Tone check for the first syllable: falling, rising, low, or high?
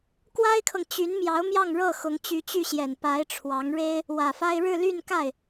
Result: high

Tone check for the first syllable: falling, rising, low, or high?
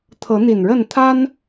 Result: rising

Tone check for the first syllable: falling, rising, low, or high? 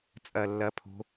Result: falling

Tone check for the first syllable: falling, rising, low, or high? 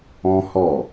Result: high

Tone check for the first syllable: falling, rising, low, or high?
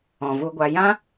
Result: low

